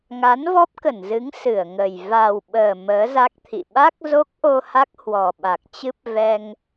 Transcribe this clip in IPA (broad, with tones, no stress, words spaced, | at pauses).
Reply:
ŋa˨˦nvɔ˦˥p̚kə˧˩nzɨ˨˦ŋ sɨ˧˩ə̯ŋə˨˩j va˨˩wɓəː˨˩ məː˨˦za˦˥k̚t̪ʰḭ˧˨ ɓa˦˥k̚zo˦˥k̚ʔo˧ ha˦˥k̚hwɔ˨˩ɓa˨˩k̚ t͡ɕɨ˦˥p̚ vɛ˧ŋ